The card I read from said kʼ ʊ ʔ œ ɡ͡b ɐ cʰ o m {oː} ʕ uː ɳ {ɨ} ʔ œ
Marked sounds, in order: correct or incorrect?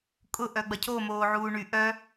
correct, incorrect

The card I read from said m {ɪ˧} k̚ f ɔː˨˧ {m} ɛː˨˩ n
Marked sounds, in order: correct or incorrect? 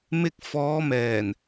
correct, correct

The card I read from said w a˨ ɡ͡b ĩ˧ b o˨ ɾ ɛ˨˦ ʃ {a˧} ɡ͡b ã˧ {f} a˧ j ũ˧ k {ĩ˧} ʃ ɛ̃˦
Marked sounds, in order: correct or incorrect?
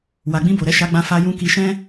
correct, correct, incorrect

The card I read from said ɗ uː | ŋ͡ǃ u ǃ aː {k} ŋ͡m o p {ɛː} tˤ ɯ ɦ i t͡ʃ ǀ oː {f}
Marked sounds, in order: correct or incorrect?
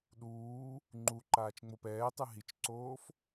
incorrect, correct, correct

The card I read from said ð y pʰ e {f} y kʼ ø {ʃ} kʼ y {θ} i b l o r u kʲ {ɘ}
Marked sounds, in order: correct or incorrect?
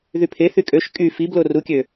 incorrect, correct, incorrect, incorrect

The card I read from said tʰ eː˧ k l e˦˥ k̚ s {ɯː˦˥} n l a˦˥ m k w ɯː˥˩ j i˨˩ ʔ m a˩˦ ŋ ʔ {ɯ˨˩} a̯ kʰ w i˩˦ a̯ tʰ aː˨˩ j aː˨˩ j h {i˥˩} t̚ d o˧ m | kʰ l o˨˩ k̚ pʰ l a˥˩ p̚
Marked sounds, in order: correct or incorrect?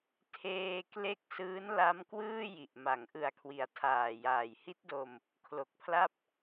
correct, correct, incorrect

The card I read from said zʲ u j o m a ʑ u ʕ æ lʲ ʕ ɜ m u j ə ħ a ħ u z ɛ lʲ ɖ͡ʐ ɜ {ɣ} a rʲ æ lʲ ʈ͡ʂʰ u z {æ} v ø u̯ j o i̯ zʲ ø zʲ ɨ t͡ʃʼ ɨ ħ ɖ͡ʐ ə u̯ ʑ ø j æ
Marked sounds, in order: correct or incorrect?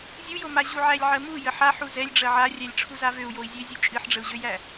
incorrect, incorrect

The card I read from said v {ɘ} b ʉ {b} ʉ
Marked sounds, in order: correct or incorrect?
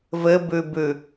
correct, correct

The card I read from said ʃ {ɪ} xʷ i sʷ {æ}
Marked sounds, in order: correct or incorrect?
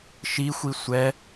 incorrect, incorrect

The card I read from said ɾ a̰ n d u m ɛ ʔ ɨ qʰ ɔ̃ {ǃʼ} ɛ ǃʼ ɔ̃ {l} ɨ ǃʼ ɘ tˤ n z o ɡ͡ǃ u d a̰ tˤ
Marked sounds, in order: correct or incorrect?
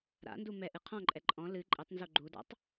correct, correct

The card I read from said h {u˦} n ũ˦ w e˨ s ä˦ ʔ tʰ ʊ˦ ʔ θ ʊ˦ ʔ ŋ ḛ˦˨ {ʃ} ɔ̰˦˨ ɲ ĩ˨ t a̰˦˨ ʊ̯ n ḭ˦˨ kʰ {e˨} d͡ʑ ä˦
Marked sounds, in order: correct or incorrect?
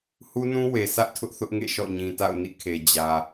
correct, correct, correct

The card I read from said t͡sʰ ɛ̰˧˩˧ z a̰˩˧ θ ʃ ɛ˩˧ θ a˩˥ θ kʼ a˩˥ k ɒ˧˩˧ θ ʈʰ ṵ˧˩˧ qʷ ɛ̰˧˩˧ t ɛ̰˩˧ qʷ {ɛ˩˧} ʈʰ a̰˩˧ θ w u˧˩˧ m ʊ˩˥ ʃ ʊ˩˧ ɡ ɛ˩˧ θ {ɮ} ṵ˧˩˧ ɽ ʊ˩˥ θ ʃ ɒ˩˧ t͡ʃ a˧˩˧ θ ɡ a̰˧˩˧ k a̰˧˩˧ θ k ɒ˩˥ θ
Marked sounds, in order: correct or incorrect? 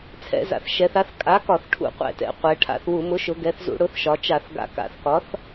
correct, incorrect

